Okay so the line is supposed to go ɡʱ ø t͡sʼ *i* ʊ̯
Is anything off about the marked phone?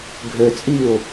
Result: yes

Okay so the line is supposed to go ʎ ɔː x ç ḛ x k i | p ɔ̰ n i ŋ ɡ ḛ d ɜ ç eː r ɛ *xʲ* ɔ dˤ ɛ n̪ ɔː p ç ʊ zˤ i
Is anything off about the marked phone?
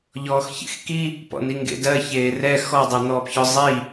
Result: yes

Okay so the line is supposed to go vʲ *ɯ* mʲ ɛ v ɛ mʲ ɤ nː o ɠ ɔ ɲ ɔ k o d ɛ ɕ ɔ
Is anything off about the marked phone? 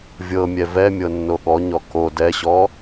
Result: yes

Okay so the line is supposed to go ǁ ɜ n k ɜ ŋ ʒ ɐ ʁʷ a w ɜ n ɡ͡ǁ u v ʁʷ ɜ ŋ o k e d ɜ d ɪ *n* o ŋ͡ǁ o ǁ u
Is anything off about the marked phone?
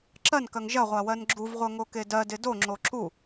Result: yes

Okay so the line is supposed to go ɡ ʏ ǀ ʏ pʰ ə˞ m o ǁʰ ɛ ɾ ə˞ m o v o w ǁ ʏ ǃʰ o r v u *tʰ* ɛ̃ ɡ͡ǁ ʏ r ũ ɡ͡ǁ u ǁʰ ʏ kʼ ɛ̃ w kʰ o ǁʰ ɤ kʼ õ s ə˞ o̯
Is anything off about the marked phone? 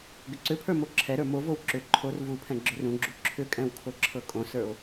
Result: yes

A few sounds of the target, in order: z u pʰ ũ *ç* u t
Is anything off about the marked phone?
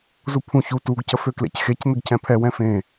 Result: no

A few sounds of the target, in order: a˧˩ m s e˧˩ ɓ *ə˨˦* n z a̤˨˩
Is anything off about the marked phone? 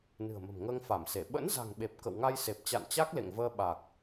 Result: yes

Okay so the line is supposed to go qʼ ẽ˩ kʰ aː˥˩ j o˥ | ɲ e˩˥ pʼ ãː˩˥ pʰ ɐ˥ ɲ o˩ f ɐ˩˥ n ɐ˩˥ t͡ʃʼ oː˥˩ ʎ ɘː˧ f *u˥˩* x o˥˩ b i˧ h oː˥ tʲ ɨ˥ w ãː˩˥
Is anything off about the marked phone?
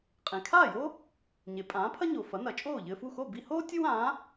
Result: no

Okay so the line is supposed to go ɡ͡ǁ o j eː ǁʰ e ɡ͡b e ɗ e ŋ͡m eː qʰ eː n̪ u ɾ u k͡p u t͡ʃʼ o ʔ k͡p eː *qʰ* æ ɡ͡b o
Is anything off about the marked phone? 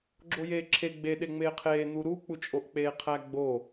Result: no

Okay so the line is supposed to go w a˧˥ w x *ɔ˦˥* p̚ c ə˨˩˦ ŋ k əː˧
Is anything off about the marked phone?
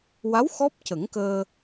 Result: no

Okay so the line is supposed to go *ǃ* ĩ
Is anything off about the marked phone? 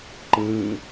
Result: no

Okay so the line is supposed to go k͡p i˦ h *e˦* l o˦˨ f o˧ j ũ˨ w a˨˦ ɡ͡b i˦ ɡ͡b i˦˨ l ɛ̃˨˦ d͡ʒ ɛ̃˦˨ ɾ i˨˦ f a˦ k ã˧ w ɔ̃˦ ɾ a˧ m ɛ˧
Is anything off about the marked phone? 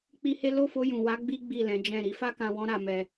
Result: no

